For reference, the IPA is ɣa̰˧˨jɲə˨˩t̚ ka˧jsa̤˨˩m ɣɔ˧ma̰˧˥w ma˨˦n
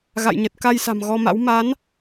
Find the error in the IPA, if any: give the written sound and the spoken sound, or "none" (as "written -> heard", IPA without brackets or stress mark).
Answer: none